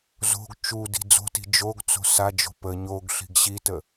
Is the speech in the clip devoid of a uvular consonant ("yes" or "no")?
yes